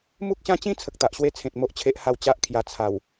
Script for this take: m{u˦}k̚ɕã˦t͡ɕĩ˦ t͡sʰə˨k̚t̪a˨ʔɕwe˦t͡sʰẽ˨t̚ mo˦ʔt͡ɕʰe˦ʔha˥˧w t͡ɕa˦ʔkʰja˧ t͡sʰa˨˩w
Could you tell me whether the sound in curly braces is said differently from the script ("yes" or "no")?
no